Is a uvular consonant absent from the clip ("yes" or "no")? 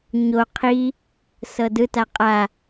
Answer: no